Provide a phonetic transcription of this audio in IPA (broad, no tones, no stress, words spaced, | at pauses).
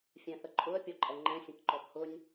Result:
fʲɛ̃θəǃʼʊə̯ pʲɔǃʼɛŋ͡ǃɛ̃ sʲə̃kǃɔbhʊnʲ